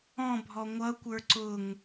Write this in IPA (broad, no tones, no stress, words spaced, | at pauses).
ɔ̃bʱɔ ŋʷʌkʷə˞ ǀʊŋ